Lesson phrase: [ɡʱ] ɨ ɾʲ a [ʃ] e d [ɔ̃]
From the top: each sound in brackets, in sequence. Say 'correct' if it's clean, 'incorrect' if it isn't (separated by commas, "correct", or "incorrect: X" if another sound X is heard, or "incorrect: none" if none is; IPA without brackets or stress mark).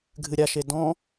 correct, correct, correct